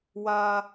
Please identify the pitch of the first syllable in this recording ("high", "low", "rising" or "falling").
high